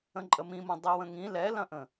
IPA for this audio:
ə̃ ǃʼ ə m ĩ m õ dˤ i w ə̃ ŋ ĩ l ɛ l ɐ̃ ʔ ə̃

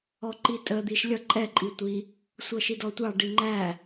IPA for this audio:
ɔ ǃ i tʼ ə d̪ i ʃ lʲ ʌ ǃʼ ɛ ǃʼ i tʷ i | sʷ ʌ ʃ i d ɔ tʷ ɑ ɖ i ŋ͡ǃ æ

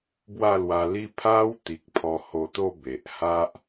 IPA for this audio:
b w a˥˧ l w a˧ l i˦ pʰ a˧ w t̪ i˨ k̚ pʰ ɔ˧ h o˧ t̪ o˥˧ b e˨ ʔ h a˦ ʔ

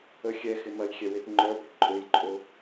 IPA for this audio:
ə xʲ ɛ x ɪ m ɐ j xʲ ɛ w e t ŋ͡ǃ œ b ə ǃʼ ø j ǃʼ o

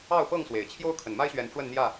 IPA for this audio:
ɑ˥˨ ʊ̯ p ɤ˥˨ ŋ s w e˨˩ ɪ̯ t͡ɕʰ j o˦ ʊ̯ kʰ ə˨˩ n m a˦ ɪ̯ ɕ ɥ ɛ˨˦ n ʈ͡ʂ w ə˥˨ n n̪ j ä˥˨

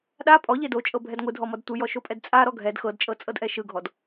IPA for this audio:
ɗ a pʼ ɔ ʎ e d o t͡ʃʼ ɤ bʱ ɛ d ŋʷ ɯ dʱ ɔ m ɔ d tʷ ɯ j ɔ ʃ o pʼ ɛ d t͡sʼ a ɾ ɔ ɡʱ ɛ d x ɤ d t͡ʃʼ ɤ t͡sʼ ɤ d ʔ ɛ ʃ ɯ ɡʱ ɔ d

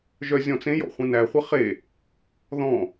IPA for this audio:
ʒ œ zʲ ɔ̃ t͡s ẽ j ɔ̰ χʷ ẽ n æ χʷ ɛ χ e | ð ɔ̃

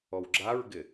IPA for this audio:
ɔ w ɡ͡ǁ a ɹ ɡ ɪ

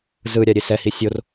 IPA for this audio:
z ɯ ɾʲ a ɾʲ e s ɛ h i sʲ o r

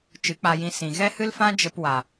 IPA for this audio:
t͡ʃ ɨ˨˦ k͡p a˧ j ĩ˧ s ĩ˨ ɣ ɛ˦ h ɨ˦ l f ã˦ d͡ʒ ə˧ p w a˨

